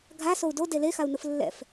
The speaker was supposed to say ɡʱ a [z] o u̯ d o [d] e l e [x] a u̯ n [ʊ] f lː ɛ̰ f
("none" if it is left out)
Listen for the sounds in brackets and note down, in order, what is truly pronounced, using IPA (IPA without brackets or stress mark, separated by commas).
s, d, x, ʊ